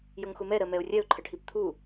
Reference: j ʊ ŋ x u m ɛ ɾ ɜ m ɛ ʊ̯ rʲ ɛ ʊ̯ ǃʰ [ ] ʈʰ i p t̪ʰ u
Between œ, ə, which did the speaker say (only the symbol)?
ə